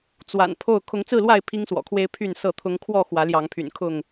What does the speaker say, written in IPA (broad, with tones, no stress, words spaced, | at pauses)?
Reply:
t͡swa̰˨˩n pʰo˥˨ʊ̯ kʰʊ˨˦ŋt͡sɹ̩˥˨lwa˥˨ɪ̯ pʰi˦ŋswɔ̰˨˩kʰwe˦ɪ̯ pʰy˥˨nsɤ˥˨t̪ʰʊ˦ŋ kʰwɔ˥˨ xwä˨˦ljɑ˨˦ŋpʰy̰˨˩n kʰʊ˥˨ŋ